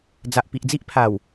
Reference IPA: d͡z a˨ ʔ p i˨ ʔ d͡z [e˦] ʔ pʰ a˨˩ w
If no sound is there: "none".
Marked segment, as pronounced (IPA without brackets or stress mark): i˦